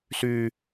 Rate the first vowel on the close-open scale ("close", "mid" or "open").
close